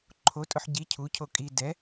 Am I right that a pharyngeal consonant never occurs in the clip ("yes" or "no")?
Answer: no